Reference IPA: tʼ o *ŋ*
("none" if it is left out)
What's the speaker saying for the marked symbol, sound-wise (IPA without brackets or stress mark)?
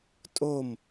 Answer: m